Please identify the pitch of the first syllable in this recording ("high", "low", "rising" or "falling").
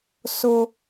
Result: high